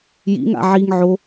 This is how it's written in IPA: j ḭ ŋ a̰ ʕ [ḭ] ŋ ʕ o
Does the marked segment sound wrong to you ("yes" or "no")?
yes